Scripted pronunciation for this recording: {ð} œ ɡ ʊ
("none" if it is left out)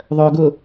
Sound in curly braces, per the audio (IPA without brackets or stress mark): ðˤ